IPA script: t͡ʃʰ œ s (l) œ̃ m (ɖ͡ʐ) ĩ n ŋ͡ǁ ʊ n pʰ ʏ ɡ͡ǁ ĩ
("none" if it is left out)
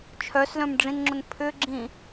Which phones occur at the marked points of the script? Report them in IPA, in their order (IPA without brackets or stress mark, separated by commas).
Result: l, ɖ͡ʐ